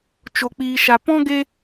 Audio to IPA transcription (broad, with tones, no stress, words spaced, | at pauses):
t͡ʃo˨k͡piː˨ʃa˨ pɔ̃˦ ɡe˦